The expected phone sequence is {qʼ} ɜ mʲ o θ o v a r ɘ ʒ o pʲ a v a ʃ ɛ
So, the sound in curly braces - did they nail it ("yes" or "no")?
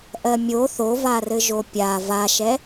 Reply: no